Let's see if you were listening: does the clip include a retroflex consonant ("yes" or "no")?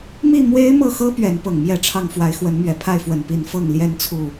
yes